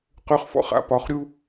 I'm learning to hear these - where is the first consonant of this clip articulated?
uvula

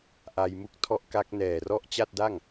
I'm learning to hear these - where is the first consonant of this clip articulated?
throat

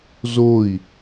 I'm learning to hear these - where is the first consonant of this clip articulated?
tongue tip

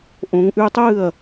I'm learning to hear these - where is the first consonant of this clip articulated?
throat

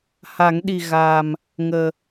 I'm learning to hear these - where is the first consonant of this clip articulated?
throat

